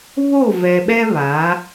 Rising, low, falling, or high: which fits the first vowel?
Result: falling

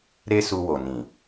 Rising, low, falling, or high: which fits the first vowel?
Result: high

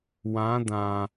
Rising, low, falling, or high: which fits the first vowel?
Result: rising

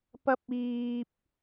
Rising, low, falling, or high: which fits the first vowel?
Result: high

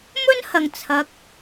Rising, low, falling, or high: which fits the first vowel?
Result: high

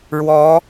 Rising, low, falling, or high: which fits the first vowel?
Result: rising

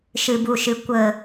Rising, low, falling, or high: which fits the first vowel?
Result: low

